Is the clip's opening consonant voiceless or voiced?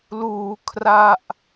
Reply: voiced